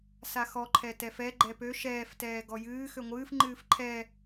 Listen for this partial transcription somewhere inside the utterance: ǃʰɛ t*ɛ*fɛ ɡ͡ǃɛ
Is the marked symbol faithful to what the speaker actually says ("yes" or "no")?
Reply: yes